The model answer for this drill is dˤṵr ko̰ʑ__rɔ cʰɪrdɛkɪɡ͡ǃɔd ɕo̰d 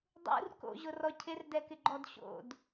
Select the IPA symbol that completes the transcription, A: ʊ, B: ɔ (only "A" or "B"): A